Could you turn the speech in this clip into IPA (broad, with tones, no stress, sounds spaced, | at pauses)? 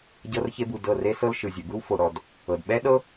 ɟ ɤ˧ r ç e˧ b u˨ d ɤ˦˨ r e˦ s ɤ˦ l ʃ ɯ˨ zʲ ɤ˨ b ɯ˦ w f o˨ ɾ ɔ˨ d | ɤ˨ d ɓ ɛ˦ ɗ ɤ˦